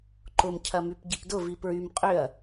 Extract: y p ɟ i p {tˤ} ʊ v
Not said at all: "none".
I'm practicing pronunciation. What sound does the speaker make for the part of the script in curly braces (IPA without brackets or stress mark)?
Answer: d